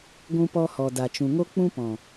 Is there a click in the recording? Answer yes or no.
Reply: no